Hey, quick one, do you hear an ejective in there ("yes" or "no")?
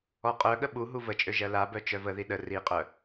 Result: yes